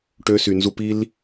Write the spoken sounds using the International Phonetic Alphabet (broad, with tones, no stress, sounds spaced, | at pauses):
ʈ ø˦ s y˧ n z u˦ p i˦ l